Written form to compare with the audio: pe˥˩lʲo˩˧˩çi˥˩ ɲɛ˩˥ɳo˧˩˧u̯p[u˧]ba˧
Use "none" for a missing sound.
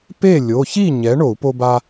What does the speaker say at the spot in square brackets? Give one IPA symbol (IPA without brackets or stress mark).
o˧